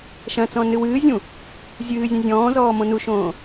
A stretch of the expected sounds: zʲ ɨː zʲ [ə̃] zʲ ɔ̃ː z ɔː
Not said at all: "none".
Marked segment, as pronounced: ɛ̃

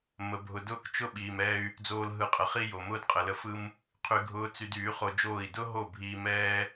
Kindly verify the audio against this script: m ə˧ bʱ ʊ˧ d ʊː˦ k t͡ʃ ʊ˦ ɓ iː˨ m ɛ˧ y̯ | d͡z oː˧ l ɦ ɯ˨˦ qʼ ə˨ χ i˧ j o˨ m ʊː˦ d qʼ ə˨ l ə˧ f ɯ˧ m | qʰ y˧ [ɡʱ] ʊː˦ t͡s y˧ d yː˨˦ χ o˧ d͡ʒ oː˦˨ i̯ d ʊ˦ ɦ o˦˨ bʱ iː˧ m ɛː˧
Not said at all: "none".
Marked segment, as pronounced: ɡʱ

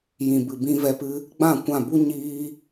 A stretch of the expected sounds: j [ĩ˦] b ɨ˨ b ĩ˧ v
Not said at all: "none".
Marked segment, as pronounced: ĩ˨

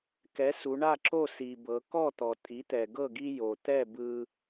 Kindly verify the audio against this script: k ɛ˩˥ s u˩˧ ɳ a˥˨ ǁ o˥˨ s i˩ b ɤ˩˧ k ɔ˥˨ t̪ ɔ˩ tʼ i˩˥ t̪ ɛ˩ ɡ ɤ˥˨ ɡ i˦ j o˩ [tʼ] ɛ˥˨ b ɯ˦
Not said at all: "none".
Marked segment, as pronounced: t̪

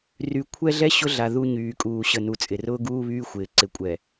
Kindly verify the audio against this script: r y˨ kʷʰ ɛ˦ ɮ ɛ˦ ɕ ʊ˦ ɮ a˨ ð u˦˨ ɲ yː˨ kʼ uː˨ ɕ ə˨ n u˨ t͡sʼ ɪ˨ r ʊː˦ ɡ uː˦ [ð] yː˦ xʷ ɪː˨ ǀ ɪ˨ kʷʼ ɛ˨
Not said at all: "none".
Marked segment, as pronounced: β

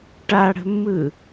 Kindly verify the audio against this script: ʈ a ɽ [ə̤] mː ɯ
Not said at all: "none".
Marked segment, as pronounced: ə̤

